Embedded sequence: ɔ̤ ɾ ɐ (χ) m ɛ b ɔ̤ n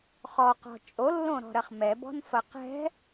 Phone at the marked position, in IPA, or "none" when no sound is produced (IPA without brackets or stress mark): χ